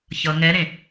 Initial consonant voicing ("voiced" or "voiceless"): voiceless